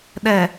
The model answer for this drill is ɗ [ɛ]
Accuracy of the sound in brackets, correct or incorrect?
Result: correct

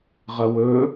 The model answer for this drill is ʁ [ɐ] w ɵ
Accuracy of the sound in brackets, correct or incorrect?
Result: correct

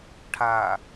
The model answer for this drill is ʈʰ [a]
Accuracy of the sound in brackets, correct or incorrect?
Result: correct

